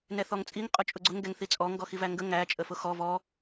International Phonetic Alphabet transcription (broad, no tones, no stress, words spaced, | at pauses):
nɛθɔŋt͡sʼiŋ qʼʊt͡ʃʼʊɡ͡ǀʊŋ ɡɛŋθit͡sʼɔ ŋɡɔxivæŋɡə ŋæ t͡ʃʼəfʊxɔ vɔ